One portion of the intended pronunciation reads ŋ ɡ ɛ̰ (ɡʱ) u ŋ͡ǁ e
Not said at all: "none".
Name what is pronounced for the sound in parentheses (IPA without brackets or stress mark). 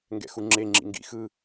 x